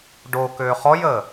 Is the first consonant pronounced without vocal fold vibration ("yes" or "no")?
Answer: no